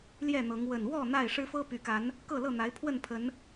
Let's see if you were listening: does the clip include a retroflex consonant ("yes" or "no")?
yes